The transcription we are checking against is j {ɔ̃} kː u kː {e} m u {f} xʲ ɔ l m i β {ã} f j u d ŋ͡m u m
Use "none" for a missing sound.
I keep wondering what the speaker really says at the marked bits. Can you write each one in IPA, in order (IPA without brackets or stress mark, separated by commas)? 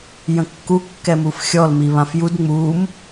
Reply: ə̃, ɛ, f, ã